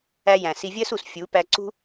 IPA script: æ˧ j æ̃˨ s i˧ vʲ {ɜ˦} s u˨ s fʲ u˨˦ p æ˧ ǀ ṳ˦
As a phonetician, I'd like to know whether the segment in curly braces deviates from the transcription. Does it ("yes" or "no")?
no